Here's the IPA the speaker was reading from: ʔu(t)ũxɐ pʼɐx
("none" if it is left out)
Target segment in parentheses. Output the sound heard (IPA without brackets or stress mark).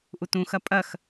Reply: t